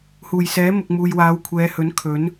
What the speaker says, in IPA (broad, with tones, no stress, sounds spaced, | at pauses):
h uː˨˩ j s ɛː˨˥ m ʊ˨ k̚ m uː˨ j w aː˨˧ w kʷʰ ɛː˨˧ h ɵ˨˥ n kʰ ɵ˨˥ n